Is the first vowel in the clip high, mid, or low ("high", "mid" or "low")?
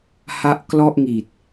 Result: low